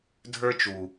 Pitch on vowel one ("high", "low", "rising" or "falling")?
high